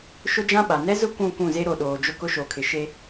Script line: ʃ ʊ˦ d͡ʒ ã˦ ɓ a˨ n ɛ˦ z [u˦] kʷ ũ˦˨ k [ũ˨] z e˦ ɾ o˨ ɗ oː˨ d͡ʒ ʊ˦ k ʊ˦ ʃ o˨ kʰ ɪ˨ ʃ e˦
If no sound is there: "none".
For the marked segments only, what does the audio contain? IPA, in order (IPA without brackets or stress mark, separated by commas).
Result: ʊ˦, ũ˦˨